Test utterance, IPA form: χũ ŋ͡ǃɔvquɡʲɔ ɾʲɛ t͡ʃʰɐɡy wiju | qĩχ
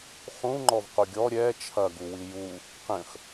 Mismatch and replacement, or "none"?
y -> u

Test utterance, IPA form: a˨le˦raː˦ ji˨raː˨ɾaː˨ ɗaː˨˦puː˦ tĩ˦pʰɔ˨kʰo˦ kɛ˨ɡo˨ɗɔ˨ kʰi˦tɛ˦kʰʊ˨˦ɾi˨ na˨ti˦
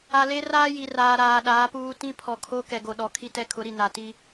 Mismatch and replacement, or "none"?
none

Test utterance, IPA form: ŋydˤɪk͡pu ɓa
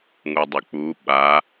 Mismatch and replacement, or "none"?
y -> u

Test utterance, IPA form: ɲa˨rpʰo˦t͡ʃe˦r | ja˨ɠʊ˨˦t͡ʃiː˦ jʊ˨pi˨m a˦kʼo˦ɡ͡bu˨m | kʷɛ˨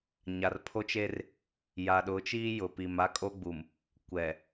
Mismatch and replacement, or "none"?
ɠ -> ɗ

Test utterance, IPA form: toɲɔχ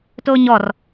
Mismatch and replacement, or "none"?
χ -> r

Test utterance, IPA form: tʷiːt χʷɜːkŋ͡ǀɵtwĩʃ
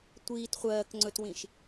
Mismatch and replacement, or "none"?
none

